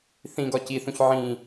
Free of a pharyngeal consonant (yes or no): no